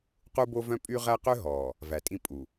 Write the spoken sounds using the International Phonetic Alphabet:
qu˦bo˦ vœ̃˦pʼy˦ ʁæ˦qø˦ɦɔː˨ | væ˨ tʼĩ˦pʼu˨

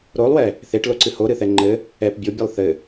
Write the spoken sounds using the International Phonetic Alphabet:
ɾolˠwɛ | θeʈloǀɨ hoɾɨθɛ ŋ͡ǃɘ | ɛp bʲobʲɨlˠ θɘ

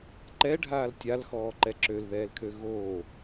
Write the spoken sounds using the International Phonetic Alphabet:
ǃɛɖʱaːl tʲalxɔːǃɛ ǁølðɛːlkʰø ɣo

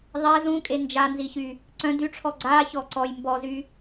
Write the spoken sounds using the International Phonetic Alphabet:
ðˤɛz ũkʼe nd͡ʒanziçy | ǀœ̃ dyʈ͡ʂʰɔ ɡ͡ǀaçɔ ǀɔj mbɔzy

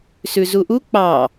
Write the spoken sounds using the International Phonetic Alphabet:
sʉzuʔu k͡pɑ

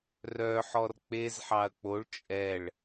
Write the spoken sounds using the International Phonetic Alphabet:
rœħɔr k͡pezħɑɐ̯ k͡poɭ t͡ʃʼɛɭ

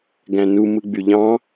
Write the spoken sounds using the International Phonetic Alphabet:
ɡæ̃nu mɯɡ͡byʎɑ̃

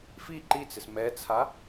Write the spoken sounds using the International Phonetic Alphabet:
fi ǃit͡sɪs mɛt͡sʰa

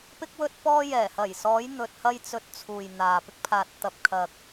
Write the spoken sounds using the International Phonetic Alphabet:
pɪ˥k̚wɵ˥t̚ pɔː˥ jɛː˨˩hɐ˨˩jsɔː˨˧j n̪ɵ˨t̚hɐ˧jt͡sɵ˨t̚ t͡sʰuː˨jn̪aː˨ pɪ˧k̚pʰaː˨t̚ t̪ɐ˨p̚kʰɐ˨k̚

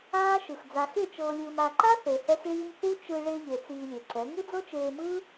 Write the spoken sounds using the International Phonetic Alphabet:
aː˦ʃɯ˨x d͡za˨xe˦˨ t͡ʃɤː˨lʲɯː˨m a˨ǃa˦ θe˨hɛ˦xɭiː˦m θu˦t͡ʃɯ˧ ɭe˧ ʎe˨ t͡siː˧lʲe˨ǀɛ˨˦ ŋu˦d͡zɤ˦t͡ʃeː˧mɯː˦

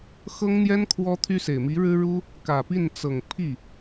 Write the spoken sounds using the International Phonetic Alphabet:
xɤ˥ŋn̪jɛ˥n kʰwɔ˥t̪ʰy˥se˨˩ɪ̯ mi˧˥ɻɻ̩˥ɻu˥ | kä˨˩pi˥˩nt͡sɤ˨˩ŋ pʰi˥˩

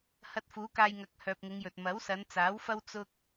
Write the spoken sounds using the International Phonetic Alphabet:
hɐ˧t̚fuː˨˥kaː˧jŋɐ˨˥k̚ hœː˨p̚ŋɪ˨˧ŋjɵ˨t̚ mɐ˨˥wsɐ˨˧nt͡saː˨˥wfɐ˥w t͡sʊ˥k̚

